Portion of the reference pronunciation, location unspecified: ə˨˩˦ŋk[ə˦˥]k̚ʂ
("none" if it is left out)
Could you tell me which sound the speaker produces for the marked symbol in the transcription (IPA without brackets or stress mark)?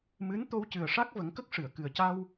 ə˦˥